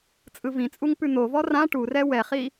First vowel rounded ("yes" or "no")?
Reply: no